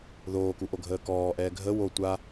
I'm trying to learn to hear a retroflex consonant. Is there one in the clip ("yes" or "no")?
no